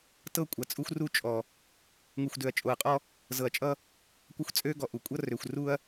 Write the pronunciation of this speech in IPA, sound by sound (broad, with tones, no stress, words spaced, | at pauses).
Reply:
tɤ˦˨kʷʼɐ˨t͡sʼu˦xʷ ru˦t͡ʃʼɔ˨ | ŋu˨xʷdø˨ɐ̯t͡ʃʼo˨ɐ̯qʼɔ˦ | zɤ˨ɐ̯t͡ʃʼʌ˦ | kʷʌ˦xʷt͡sʼø˦ɡɔ˨ʔu˨ kʷʼʌ˦rø˨xʷ ru˦ɐ̯